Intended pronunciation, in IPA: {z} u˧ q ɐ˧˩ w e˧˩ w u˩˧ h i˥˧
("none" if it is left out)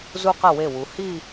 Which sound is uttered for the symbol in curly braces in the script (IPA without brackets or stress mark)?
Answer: z